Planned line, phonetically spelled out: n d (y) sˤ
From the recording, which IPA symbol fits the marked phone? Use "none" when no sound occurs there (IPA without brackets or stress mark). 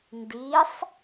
i